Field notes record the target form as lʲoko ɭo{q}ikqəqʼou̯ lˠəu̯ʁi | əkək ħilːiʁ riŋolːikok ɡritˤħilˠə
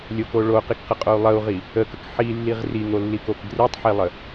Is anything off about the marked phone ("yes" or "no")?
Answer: no